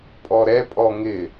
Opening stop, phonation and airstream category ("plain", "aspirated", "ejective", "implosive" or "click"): ejective